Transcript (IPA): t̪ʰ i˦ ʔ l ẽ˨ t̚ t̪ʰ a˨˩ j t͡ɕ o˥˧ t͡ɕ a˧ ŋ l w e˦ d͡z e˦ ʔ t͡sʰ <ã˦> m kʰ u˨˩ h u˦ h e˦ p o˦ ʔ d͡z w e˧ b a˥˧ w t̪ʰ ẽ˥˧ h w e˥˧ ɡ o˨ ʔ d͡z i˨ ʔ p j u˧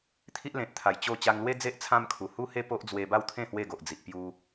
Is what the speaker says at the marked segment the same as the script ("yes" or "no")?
yes